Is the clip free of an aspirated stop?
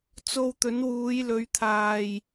no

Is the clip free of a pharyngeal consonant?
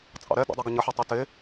no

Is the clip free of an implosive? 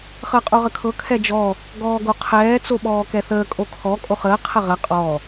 no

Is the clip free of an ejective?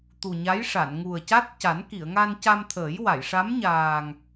yes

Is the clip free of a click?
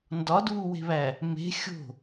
yes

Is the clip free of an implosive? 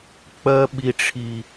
no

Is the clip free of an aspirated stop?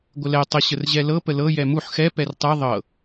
yes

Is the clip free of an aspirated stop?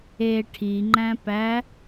no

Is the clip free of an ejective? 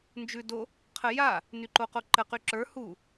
yes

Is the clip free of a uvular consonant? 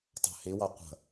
no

